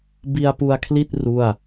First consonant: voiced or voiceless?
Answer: voiced